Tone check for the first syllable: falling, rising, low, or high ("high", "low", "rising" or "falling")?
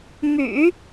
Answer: low